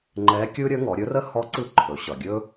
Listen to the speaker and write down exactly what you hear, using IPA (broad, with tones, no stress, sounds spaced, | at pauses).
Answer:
ŋ͡ǃ ɛ˧˥ kʲ ɯ˥ ɾʲ ə˧˥ ŋ ɔ˩˧ ɾʲ ɵ˧˥ r ə˥ h ɔ˧˥ ǀ ɯ˧˥ ǃʰ ɵ˩˧ ɕ ʌ˩ ɡʲ ɵ˥